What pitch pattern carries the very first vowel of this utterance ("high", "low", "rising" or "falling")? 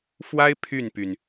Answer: high